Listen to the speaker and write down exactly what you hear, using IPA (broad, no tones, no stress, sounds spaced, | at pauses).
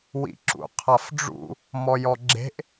w ḭ ǁ ṵ qʰ a f ɖ͡ʐ ṵ | m ɔ j ɔ ɡ͡ǁ e̤ ʔ